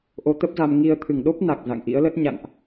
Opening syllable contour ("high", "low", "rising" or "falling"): rising